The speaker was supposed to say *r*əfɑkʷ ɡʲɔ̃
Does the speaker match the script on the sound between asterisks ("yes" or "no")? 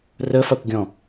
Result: yes